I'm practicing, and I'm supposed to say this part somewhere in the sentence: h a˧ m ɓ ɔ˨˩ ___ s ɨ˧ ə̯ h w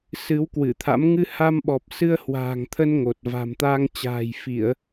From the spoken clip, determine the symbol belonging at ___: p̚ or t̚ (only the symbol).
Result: p̚